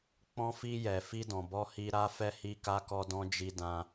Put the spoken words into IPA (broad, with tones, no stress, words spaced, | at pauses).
k͡pɔ̃˧fi˧jɛ˨ fi˧dɔ̃˨bɔ˧hi˧ ɾa˧fɛ˧ hi˧ka˧kɔ˧dɔ̃˧ d͡ʒi˧dã˧